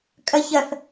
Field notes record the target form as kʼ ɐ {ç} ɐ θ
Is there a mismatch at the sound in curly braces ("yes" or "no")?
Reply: no